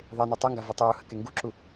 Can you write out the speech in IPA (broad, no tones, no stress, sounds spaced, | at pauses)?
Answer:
ðˤ e n u tˤ u ŋ ɡ a v ø tˤ uː h ə k e ŋ ɡ u ǁ u